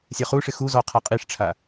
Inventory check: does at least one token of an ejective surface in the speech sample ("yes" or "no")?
yes